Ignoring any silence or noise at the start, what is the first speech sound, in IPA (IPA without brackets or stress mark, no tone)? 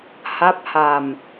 h